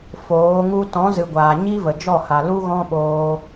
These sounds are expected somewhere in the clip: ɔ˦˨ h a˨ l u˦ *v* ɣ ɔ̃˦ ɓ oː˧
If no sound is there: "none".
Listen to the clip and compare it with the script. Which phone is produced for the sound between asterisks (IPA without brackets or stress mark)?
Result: none